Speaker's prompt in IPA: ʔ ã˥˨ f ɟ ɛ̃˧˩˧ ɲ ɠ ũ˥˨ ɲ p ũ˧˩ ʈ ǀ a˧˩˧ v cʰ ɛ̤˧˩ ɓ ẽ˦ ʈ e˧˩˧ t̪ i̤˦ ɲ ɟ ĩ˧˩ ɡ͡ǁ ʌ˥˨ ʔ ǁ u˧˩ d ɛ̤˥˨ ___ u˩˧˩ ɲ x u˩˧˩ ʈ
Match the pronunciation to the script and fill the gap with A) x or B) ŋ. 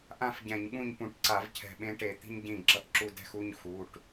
A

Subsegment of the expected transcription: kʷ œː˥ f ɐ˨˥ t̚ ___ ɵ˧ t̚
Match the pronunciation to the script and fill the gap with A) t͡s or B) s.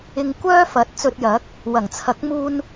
A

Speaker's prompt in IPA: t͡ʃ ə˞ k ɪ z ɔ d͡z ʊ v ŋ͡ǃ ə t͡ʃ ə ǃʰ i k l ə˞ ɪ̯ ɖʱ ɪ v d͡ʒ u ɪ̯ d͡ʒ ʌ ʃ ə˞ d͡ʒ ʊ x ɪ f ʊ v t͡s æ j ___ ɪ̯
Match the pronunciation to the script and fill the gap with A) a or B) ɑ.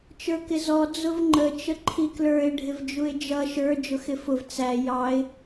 B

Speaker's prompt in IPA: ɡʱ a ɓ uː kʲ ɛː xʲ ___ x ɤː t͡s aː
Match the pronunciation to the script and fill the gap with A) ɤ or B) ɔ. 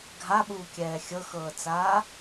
A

